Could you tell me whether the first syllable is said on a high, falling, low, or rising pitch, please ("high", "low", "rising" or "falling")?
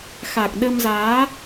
low